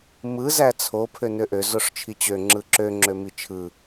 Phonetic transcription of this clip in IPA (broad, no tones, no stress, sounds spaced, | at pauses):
m ɯ z æ t͡sʰ o pʰ ø n ø ʔ ø z o ʂ t͡ʃʰ i t͡ɕ ø ŋ͡ǁ ɯ ǁ ø ŋ͡ǁ ø m i t͡ʃʰ ɯ